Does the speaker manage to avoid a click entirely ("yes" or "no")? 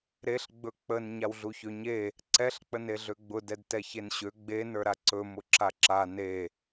no